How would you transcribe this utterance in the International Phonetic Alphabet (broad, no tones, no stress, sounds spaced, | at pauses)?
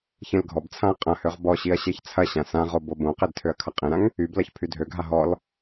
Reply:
ç ẽ l ɡʱ ɔ b t͡sʰ ã ɐ̯ qʼ ɐ̃ h ø ʁ b ɔ ɕ i ɐ̯ ɕ e ç t͡sʰ ɐ ɕ ã s ã ʁ o b o b õ q e d tʰ ø ɐ̯ kʰ ɐ qʼ ẽ ɾ ã ŋ | y b l ɐ ç pʰ y dʱ ø ɡʱ a ɦ ɔ l